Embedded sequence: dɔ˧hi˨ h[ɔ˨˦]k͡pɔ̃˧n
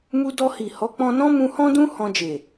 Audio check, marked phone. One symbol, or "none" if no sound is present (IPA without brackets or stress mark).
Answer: ɔ˨˦